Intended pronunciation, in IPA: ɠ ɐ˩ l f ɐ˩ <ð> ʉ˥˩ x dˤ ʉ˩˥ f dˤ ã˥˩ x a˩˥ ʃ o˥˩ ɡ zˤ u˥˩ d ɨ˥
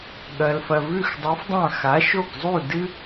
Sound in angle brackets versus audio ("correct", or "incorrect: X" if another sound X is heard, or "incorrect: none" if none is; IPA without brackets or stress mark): incorrect: v